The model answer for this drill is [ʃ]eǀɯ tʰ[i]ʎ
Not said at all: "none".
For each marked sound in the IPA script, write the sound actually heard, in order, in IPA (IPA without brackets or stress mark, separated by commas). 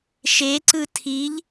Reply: ʃ, i